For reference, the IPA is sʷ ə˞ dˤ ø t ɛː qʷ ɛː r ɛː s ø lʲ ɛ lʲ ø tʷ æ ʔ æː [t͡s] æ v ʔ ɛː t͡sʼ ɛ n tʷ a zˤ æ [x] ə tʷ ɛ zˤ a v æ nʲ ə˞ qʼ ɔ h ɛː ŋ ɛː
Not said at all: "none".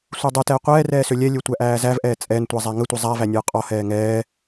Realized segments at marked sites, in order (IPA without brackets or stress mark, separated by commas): z, ŋ